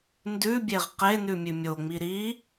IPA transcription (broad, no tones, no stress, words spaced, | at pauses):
ndʉbʲeʁ qenʉ mʲʉmʲoŋ͡mi ɾi